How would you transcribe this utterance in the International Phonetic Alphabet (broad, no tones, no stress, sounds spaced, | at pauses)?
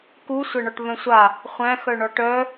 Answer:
k u sʷ æ ɳ ɔ ʈ β œ̃ sʷ a | χʷ æ̃ x œ ɳ ɔ ʈ œ